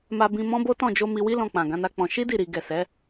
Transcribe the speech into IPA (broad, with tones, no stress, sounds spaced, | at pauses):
m a˧ b ĩ˧ m ɔ̃˦ b o˦ t ɔ̃˦˨ d͡ʒ o˧ m i˧ w i˦ l ɔ̃˧ k͡p ã˨ ɡ ã˨˦ n a˦ k͡p ɔ̃˧ ʃ i˦ d i˦˨ ɾ i˨ ɡ ɛ˨ s ɛ˨˦